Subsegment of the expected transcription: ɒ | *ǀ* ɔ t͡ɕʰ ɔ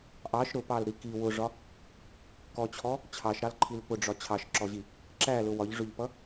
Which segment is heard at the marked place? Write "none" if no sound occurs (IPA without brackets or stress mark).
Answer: k